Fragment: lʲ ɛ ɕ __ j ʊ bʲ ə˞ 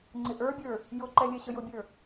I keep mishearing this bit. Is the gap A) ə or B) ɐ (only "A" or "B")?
A